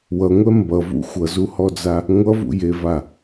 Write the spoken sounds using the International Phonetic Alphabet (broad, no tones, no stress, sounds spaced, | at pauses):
w ʌ ŋʷ ɛ m b ʌ v ṵ xʷ ʌ z u h ɔ d͡z a | ŋʷ ʌ v ṵ j e v a